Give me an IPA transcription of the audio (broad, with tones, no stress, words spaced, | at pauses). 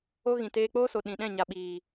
o˦ɣĩ˨ teː˧k͡poː˦so˨ ɗĩ˨ɗɛ̃˦˨ ɲa˨ɓiː˨